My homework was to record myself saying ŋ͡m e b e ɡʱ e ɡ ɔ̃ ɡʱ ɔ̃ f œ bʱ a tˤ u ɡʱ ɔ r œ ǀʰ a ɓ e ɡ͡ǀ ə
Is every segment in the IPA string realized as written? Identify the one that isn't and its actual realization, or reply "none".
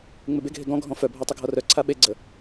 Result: none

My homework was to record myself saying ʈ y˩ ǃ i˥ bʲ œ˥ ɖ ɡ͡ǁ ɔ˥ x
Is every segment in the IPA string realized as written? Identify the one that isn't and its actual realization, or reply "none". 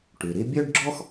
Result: ǃ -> ɾ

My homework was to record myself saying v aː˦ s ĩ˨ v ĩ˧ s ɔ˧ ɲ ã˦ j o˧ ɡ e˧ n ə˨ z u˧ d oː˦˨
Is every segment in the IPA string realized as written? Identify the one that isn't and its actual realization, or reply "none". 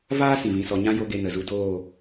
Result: none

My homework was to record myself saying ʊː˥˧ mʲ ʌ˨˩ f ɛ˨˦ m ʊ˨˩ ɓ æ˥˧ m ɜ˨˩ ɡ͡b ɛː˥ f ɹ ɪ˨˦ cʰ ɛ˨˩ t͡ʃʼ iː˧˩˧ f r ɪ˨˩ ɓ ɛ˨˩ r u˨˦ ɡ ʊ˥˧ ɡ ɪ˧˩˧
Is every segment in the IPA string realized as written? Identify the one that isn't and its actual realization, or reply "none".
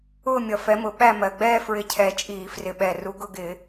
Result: none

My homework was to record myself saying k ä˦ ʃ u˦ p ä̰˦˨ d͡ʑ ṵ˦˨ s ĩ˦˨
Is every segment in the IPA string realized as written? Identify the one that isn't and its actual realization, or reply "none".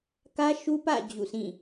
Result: none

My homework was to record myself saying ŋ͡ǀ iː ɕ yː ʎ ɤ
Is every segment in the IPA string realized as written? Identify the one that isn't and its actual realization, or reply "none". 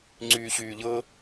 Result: iː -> yː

